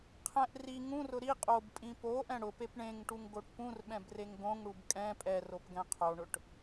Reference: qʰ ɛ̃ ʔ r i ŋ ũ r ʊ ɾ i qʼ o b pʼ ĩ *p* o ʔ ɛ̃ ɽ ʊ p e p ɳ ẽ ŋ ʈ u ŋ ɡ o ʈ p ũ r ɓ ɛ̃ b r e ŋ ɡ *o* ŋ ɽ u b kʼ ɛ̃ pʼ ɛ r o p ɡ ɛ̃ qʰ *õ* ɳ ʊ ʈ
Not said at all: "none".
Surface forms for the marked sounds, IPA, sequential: p, õ, o

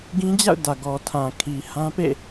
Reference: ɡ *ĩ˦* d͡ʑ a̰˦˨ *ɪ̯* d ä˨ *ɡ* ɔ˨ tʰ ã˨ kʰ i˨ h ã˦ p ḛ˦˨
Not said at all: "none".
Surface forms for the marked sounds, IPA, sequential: ĩ˦, ʊ̯, ɡ

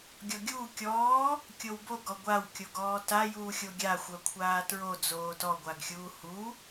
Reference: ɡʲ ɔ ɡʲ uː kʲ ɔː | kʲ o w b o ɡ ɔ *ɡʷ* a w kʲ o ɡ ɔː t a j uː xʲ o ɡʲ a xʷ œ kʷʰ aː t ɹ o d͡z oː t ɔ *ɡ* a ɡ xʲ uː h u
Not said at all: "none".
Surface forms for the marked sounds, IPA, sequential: ɡʷ, ɡʷ

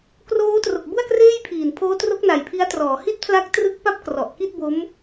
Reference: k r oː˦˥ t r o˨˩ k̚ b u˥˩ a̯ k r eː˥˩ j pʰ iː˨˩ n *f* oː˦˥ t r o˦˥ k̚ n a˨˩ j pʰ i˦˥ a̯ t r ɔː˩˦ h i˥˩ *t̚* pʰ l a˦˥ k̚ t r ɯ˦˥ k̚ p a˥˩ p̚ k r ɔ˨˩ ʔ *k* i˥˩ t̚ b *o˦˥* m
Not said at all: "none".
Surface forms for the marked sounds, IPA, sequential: pʰ, t̚, k, o˦˥

